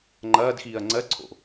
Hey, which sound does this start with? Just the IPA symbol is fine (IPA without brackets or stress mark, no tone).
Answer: ŋ͡ǃ